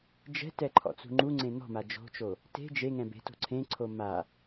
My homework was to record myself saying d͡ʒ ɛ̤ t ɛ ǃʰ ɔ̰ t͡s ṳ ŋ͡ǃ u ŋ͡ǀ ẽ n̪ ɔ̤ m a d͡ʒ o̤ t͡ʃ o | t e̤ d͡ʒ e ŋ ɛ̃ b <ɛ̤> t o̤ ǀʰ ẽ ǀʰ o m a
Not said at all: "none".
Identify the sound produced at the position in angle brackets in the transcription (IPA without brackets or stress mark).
e̤